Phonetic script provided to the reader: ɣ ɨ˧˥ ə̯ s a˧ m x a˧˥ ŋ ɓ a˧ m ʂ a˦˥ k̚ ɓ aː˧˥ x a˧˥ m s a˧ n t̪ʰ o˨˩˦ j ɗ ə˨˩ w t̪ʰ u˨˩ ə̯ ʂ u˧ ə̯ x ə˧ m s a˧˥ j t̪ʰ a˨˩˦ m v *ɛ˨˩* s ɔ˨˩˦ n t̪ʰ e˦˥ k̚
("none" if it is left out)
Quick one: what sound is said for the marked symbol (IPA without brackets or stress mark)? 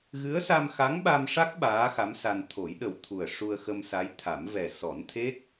ɛ˨˩